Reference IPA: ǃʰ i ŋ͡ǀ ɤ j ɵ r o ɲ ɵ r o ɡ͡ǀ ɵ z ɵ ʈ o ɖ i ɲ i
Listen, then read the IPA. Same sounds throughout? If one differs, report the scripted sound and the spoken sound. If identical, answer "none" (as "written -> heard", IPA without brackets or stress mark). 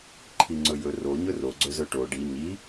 ɤ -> ɵ